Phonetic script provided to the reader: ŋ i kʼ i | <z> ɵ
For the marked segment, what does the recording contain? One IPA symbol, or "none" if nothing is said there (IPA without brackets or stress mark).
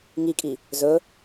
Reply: z